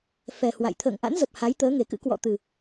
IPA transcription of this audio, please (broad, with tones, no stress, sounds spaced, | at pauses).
f ɛ˨˩ h w a̰˧˨ j t̪ʰ ə̰ː˧˨ ŋ ʔ a̰˧˥ n z ə˨˩ p̚ h a˨˦ j t̪ əː˨˦ ŋ e˨˩ k ɨ̰˧˥ k w ɔ̰˧˨ t̪ ɨ˨˩